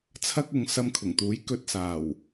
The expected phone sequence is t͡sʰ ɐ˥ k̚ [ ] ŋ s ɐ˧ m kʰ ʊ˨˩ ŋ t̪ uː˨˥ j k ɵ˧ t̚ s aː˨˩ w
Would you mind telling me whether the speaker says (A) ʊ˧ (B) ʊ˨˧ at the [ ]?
B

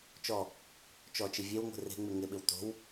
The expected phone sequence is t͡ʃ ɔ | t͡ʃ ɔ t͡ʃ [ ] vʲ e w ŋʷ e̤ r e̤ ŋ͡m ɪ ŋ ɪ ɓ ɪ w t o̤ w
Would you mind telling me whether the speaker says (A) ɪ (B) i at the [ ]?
A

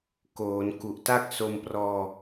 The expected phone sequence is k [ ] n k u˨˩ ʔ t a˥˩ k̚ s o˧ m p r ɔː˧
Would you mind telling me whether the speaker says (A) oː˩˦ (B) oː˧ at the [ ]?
A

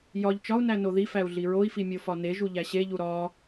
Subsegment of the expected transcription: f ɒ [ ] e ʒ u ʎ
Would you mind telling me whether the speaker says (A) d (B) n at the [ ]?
B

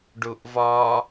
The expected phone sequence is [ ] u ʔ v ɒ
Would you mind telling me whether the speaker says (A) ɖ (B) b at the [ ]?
A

